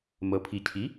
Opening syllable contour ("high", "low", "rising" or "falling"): low